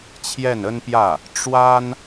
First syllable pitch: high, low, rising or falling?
falling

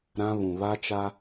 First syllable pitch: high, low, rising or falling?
high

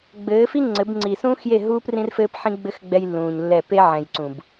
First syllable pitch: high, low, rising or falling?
rising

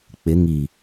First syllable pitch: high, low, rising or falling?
rising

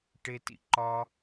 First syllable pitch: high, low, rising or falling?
high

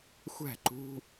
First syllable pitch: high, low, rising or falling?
falling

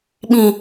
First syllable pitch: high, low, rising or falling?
low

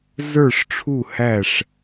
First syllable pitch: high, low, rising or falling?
falling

